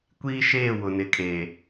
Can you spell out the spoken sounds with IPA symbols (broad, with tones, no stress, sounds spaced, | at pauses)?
kʷ iː˦ ʃ eː˦˨ w ʊ˨ n ɪ˨ kʼ e˨